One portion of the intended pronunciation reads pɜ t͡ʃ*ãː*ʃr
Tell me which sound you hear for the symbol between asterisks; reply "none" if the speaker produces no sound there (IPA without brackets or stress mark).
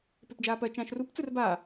ãː